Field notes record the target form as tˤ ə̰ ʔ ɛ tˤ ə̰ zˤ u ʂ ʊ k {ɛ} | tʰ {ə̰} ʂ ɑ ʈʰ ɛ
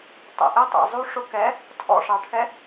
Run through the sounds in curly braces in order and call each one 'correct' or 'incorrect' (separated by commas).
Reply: correct, incorrect